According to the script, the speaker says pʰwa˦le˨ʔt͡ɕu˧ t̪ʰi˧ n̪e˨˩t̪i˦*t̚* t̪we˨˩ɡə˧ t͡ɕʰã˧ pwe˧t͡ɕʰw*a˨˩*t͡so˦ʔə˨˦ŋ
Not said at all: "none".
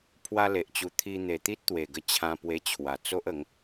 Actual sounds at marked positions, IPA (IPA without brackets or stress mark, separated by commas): t̚, a˨˩